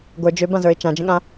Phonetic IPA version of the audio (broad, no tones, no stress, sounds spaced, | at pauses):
ɡʷ ə˞ d͡ʒ ø b ã z ə˞ ɪ̯ t͡ʃ ã d͡ʒ ə̃ ɠ ã